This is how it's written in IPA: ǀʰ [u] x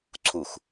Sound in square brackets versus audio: correct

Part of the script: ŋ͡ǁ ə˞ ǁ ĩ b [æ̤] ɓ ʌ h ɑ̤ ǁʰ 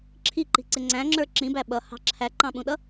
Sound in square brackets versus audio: incorrect: æ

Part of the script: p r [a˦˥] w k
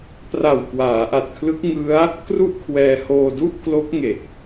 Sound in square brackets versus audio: incorrect: a˨˩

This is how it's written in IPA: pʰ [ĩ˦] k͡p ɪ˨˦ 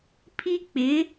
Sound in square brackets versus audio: incorrect: i˦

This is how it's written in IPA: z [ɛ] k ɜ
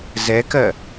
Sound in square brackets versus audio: correct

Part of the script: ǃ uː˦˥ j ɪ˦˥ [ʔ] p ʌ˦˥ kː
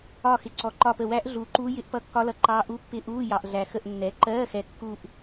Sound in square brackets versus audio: correct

